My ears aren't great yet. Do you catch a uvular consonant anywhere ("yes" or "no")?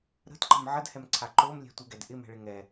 no